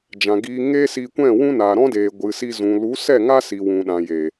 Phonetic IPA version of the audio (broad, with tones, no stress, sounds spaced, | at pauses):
d͡ʒ ã˨ ɡ iː˧ ŋ eː˦ s i˧ kʷ ɛ̃˦˨ w ũ˦ n aː˨ ɾ ɔ̃˦ d eː˨ ɡʷ ɨ˨ s i˧ z ũ˨ l u˨˦ s ɛ˦˨ ŋ a˦ s i˨ w ũ˨ ɗ ã˨ j eː˨